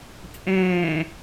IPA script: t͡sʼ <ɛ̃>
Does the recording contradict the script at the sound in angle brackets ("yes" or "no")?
yes